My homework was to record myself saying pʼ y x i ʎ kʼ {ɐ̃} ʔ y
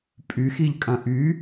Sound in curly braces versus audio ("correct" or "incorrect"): correct